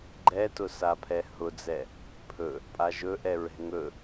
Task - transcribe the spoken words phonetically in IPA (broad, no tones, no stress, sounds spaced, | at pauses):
ɡ͡ǃ ɛ t ʊ s a pʰ ɛ h ʊ d͡z ɛ | pʰ ɵ | pʼ a ʒ ɵ ʔ ɛ ɹ ɛ̤ ŋ ɵ